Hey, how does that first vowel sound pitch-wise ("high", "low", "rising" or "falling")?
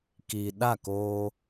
low